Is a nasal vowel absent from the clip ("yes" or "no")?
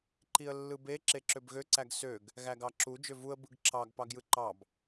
yes